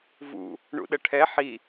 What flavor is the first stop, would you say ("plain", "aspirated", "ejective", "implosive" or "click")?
implosive